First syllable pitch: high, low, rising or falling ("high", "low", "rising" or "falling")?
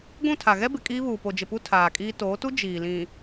falling